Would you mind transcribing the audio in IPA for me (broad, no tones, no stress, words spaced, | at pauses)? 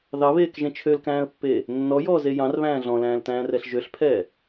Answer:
ðɑβeːkʒẽ t͡ʃʰølkæ̃ːə̯pːeː | nːɔjɔːze jɑ̃rβæ̃ː ɮɔ̃læ̃ːltæ̃ːrɛɬ ʒøɬpʰɛː